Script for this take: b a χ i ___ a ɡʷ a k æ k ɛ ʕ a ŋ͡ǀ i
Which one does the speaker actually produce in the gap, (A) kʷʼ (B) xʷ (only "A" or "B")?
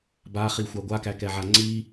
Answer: B